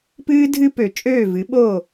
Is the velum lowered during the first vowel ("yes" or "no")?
no